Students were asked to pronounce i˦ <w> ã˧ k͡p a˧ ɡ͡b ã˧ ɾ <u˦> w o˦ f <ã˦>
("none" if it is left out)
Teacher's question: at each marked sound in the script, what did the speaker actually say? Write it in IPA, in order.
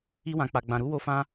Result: w, u˦, ã˦

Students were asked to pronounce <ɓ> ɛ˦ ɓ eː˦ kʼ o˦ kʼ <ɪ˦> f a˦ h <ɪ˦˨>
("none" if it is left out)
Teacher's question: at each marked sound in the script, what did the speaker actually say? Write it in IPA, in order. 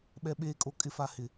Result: ɓ, ɪ˦, ɪ˦˨

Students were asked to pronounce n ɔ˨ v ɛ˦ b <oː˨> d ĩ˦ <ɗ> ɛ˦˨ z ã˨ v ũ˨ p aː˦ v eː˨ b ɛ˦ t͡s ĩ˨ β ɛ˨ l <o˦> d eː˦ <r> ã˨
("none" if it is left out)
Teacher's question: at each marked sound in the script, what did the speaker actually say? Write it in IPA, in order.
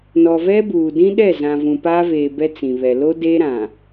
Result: uː˨, ɗ, o˦, ɾ

